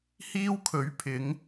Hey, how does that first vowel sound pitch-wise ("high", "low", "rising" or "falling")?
high